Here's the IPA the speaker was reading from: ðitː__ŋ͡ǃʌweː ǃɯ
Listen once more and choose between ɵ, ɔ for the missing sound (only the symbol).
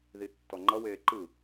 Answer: ɔ